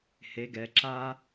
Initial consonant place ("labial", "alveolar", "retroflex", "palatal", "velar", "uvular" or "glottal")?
glottal